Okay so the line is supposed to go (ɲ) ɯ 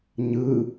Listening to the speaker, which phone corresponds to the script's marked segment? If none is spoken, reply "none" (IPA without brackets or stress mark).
ɲ